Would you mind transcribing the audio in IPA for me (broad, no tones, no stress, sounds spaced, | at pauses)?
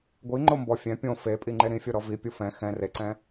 ɡʷ i ŋ͡ǃ o m b ɔ fʲ ɛ̃ pʲ õ f e pʼ i ŋ͡ǃ e ɾ ĩ fʲ o ɾ ɔ v i pʲ u f ɛ̃ x ɛ̃ r e ǀ ɛ̃